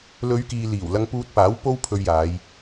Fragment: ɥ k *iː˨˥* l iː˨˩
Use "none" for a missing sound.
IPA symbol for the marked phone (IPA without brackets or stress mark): iː˨